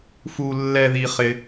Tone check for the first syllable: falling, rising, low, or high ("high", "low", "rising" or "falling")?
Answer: low